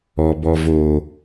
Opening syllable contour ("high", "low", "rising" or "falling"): low